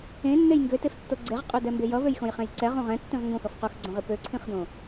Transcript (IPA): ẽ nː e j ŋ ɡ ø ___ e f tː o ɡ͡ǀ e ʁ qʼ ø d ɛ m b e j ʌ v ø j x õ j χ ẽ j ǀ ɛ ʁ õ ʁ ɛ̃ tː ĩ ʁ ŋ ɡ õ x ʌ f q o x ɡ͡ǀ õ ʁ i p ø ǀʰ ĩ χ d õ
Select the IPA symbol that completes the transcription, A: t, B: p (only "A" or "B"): A